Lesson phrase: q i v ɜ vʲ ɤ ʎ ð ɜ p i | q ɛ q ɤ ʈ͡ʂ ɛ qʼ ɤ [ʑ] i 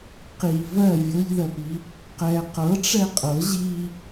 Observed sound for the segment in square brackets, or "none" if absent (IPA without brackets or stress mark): ʑ